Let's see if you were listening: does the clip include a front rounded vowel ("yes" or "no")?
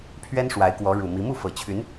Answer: yes